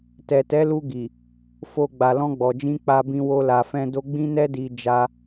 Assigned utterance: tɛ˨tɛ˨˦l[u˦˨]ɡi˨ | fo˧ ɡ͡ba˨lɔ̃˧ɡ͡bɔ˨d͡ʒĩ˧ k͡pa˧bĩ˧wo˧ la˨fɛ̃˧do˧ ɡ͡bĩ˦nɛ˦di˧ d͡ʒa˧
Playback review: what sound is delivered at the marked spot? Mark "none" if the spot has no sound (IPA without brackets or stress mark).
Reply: u˧